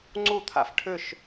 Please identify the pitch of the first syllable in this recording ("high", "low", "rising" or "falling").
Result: falling